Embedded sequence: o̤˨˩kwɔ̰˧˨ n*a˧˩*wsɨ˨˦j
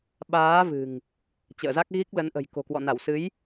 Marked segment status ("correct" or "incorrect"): correct